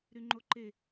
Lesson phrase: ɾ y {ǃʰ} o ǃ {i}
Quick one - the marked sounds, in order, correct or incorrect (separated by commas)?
incorrect, incorrect